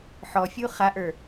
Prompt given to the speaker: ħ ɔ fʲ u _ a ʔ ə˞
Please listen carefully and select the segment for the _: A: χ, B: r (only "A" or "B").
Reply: A